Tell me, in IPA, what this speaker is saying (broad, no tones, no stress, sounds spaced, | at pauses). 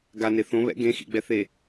ɡ a n e θ õ β ɛ̰ ɡ ẽ x ḭ ɡ͡b ɛ θ e